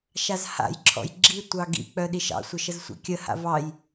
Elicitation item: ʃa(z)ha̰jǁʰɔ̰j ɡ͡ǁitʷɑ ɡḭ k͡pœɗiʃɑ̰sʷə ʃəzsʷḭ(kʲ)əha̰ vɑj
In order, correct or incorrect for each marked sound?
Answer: correct, correct

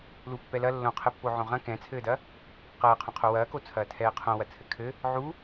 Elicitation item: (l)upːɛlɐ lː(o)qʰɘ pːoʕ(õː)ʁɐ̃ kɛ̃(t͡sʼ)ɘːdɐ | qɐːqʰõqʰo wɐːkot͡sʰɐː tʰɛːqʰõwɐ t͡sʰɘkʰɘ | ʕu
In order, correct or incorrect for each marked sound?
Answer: correct, incorrect: õ, incorrect: õ, incorrect: t͡sʰ

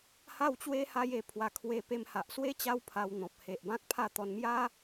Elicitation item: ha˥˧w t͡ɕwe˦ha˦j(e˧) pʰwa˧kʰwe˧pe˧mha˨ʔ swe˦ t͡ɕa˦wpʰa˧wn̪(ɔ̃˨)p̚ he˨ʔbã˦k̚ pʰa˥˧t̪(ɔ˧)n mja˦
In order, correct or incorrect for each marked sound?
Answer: correct, correct, correct

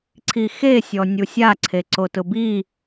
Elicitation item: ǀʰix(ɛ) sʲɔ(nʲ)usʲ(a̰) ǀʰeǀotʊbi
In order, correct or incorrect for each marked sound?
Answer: incorrect: e, correct, incorrect: a

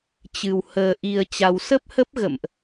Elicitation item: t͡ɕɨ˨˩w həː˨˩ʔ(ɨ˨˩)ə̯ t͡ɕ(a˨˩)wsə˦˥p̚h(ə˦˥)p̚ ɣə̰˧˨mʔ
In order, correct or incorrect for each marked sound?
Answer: incorrect: i˨˩, correct, correct

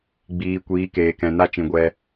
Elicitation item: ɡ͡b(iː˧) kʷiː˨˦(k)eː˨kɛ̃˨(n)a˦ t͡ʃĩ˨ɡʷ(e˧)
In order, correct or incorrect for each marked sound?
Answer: incorrect: iː˨, correct, correct, incorrect: ɛ˧

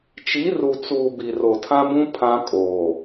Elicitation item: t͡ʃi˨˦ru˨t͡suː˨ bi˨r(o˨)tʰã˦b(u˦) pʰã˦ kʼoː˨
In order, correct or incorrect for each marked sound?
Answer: correct, incorrect: ũ˦

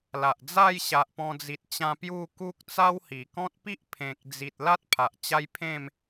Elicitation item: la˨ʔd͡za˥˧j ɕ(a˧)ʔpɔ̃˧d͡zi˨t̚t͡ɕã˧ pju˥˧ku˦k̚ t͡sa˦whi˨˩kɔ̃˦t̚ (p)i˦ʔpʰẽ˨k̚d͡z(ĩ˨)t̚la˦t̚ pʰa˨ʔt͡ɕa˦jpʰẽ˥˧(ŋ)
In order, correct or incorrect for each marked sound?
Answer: incorrect: a˨, correct, incorrect: i˨, incorrect: m

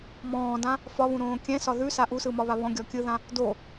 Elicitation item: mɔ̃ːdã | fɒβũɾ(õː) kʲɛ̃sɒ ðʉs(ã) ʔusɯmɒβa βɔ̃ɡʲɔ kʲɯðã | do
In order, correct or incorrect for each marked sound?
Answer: correct, incorrect: a

